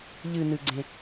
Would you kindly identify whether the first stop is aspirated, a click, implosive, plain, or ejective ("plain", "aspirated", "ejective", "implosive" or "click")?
click